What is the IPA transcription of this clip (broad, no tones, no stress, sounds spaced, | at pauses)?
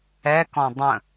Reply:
ɛ k ɔ̃ dˤ ə̃